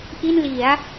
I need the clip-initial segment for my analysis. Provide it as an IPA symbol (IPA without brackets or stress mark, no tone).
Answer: ʔ